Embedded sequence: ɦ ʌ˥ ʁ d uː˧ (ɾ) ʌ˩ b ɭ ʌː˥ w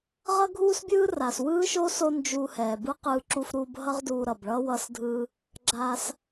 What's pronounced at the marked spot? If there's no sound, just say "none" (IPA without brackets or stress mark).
ɾ